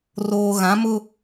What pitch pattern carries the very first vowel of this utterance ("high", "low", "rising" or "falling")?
low